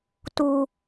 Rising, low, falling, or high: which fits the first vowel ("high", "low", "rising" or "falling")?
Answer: low